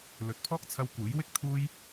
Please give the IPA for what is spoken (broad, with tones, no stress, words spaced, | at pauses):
lɵ˨˥t̚pʰɔː˥k̚t͡sʰɐ˧w kuː˨˥jwɪ˥k̚ t̪ʰuː˥j